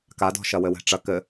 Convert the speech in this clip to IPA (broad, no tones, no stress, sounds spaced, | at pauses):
k a d ɔ̤ ʃ ɐ w ɘ w ɛ̤ ʈ͡ʂ ɐ k ɘ